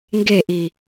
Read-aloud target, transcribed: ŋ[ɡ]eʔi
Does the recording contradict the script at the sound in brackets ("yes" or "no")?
no